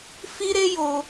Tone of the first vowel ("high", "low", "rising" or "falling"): high